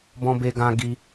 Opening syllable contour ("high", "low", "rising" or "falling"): high